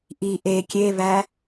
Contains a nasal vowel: no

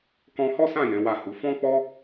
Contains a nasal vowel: yes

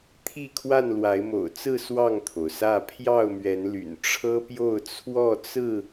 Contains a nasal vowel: no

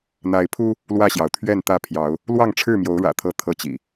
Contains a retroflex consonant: yes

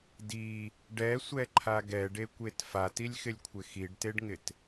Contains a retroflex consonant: yes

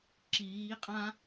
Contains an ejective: yes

